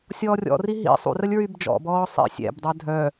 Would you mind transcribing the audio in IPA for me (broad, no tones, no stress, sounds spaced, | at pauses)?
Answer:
sʲ ɔː rʲ ɔ̰ r i ɦ ḭ sˤ ṵ r ə lʲ ɹ y b d͡ʒ ɔ̰ b ɔː sˤ ḭ sʲ ɛ̰ b dˤ œ dʱ œ